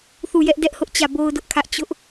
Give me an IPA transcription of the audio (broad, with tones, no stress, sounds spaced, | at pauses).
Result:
θ u˦˨ j ɛ˦ ʔ d ɛ˦ ʔ h ʊ˦ ʔ t͡ɕ ä˦˨ b o˦ ʊ̯ d ʊ˦ ʔ kʰ ä˦ ʔ t͡ɕ ʊ˦ ʔ